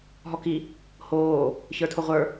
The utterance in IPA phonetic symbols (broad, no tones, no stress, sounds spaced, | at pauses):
ɦ ɔ k i | h oː | ç ə˞ tʰ o ʁʷ ə˞